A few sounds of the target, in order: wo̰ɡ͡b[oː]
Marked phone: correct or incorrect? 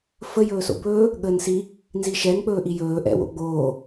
correct